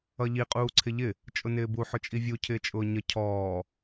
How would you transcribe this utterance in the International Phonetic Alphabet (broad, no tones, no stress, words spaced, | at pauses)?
ʌʎi qʼuːǀʰɪʎɪ | t͡ʃʼʊnɪːbu ħʊt͡ʃʼivʲu cʰɪːt͡ʃʼʊːɲə cʰɔː